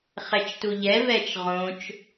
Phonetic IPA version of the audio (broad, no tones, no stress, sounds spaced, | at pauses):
χ ɛ t͡ʃ t u ʎ ɛ v ɛ t͡ʃ ʁ õ t͡ʃ